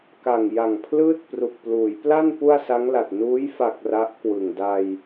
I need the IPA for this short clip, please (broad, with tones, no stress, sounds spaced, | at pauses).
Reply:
k a˨˩ ŋ j a˨˩ ŋ pʰ l ɯː˥˩ t̚ p r u˨˩ k̚ p l uː˩˦ j p l a˥˩ n p u˥˩ a̯ s a˦˥ ŋ l a˨˩ t̚ n uː˦˥ j f a˨˩ k̚ r a˦˥ ʔ k w ɯ˨˩ ŋ d a˧ j